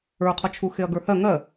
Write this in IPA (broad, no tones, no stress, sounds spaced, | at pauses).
ə˞ qʰ ɒ t͡ʃʰ u x e ɐ̯ ɡ ə˞ h ɜ ŋ ɜ